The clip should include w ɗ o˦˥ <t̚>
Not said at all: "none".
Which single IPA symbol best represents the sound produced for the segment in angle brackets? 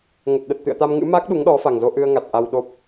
p̚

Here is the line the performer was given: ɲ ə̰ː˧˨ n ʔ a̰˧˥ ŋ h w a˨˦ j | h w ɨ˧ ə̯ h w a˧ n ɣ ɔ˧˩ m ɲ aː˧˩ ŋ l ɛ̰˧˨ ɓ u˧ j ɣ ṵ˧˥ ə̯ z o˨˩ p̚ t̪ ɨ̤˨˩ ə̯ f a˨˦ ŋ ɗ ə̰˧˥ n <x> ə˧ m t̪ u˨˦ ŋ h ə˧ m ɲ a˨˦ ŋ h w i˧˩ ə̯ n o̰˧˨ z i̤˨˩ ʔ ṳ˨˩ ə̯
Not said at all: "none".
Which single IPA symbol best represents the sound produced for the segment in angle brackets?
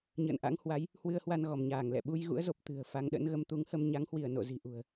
ɣ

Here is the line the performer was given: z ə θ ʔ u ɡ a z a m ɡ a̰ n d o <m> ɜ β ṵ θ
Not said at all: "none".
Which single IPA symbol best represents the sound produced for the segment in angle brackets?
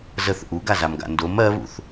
m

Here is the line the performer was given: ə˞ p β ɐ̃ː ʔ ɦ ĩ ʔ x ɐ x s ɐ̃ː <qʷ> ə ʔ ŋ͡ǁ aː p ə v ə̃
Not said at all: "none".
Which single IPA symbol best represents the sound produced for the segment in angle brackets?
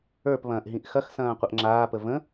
qʷ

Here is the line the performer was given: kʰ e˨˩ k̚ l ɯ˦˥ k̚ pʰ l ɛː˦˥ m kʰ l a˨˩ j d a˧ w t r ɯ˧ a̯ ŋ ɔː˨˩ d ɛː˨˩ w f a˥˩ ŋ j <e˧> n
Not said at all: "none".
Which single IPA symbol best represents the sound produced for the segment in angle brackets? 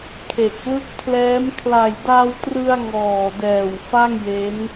e˦˥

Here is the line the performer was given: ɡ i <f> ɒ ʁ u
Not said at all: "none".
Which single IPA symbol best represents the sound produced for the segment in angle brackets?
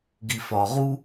f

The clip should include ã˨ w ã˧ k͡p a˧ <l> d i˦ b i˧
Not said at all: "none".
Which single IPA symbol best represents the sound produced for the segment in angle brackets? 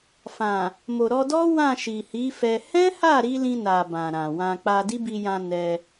none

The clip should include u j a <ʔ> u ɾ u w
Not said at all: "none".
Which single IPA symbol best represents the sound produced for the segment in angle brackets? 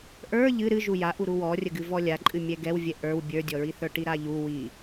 ʔ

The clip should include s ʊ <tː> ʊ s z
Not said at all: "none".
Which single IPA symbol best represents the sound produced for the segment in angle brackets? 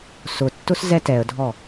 tː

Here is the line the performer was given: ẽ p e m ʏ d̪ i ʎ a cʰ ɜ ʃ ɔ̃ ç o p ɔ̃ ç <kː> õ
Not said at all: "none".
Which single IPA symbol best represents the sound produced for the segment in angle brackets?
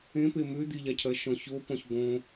ɡ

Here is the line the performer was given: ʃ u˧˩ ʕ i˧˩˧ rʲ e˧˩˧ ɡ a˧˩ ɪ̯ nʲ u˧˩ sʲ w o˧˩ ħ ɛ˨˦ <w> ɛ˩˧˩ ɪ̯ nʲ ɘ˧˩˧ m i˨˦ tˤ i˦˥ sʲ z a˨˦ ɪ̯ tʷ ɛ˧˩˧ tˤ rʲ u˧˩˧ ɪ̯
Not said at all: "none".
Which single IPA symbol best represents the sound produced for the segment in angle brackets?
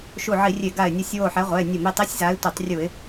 ʁʷ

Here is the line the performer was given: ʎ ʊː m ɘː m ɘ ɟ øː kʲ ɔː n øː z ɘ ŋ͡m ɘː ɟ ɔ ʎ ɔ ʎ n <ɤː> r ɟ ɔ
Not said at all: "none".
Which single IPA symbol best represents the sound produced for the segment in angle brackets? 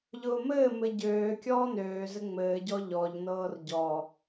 ɤː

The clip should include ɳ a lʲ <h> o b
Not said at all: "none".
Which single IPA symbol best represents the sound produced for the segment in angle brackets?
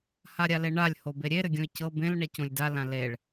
h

